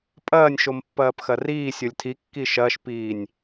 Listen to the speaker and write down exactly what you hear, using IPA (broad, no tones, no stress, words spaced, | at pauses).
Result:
pʼɐːnʲʃom pːɐːpxɐriː sʲolʲtʰi kːiʃɐːʃpiːnʲ